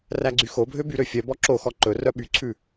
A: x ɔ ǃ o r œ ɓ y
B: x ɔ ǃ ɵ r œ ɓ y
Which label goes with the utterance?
B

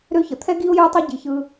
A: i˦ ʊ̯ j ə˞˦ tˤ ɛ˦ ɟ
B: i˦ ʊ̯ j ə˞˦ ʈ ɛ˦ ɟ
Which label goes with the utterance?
A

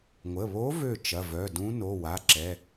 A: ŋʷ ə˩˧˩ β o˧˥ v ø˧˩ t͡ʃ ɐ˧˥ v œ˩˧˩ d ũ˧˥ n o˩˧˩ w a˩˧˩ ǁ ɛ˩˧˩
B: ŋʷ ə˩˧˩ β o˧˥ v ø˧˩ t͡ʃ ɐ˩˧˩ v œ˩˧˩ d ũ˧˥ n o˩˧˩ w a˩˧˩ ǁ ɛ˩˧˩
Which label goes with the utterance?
B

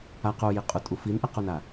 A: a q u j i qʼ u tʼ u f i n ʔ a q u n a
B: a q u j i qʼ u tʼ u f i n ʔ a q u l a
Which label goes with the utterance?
A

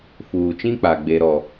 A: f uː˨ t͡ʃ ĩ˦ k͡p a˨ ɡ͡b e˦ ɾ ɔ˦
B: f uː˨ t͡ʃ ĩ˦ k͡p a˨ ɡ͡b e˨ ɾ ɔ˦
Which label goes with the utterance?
A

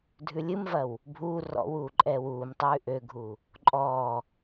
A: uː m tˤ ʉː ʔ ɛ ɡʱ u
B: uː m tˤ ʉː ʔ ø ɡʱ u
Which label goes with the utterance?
B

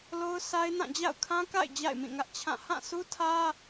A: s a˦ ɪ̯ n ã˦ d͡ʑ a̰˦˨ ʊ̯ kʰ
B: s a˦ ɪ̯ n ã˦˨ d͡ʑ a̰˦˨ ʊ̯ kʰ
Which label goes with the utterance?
B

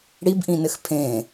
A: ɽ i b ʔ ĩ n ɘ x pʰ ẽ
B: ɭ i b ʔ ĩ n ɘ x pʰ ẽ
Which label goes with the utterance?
A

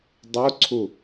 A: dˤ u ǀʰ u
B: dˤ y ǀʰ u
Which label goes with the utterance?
A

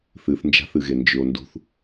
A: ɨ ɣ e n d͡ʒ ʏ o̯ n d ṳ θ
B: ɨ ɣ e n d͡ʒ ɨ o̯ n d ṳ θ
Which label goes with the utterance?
A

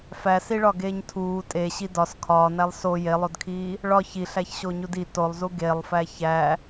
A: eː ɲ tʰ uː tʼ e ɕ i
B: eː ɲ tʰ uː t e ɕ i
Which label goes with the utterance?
A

